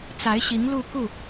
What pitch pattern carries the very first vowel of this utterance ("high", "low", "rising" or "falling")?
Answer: rising